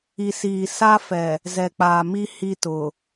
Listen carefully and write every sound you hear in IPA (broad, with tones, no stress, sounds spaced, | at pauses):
i˨ s iː˨ s a˦ f ɛ˨ | z ɛ˨ k͡p aː˨ m i˦ h i˦ t ʊ˨